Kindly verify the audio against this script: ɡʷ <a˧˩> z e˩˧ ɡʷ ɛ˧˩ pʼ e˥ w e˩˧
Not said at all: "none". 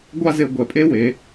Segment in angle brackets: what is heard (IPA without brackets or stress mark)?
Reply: a˥˧